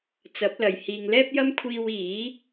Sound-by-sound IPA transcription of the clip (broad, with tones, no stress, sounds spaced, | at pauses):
t͡s ɐ˨˥ p̚ l ɐ˨ j h iː˨ ŋ l ɛː˥ p̚ j ɐ˥ m kʷʰ iː˧ w iː˨˥